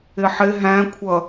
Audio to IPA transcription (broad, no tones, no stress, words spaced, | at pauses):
ɪħɪ ɦæ̃kʷʰʌ